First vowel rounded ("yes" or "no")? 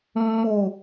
yes